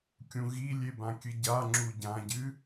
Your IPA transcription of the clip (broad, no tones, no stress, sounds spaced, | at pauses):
kʲ ũ ɣ i lʲ e b ã kʲ ɨ ɟ a ŋ͡ǁ u ɟ ã ɟ ɨ